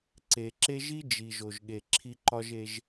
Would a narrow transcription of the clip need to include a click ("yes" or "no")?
yes